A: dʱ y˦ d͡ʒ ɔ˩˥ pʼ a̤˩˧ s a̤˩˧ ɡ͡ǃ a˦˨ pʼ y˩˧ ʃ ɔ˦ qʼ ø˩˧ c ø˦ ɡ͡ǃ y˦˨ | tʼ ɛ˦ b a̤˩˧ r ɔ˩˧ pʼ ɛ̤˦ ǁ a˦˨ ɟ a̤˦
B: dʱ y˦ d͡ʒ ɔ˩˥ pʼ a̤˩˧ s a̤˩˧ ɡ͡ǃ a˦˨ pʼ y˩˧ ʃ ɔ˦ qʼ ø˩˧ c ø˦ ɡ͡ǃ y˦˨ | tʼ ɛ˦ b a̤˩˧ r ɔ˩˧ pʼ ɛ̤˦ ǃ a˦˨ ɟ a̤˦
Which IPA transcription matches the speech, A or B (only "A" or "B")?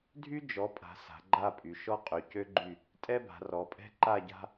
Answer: B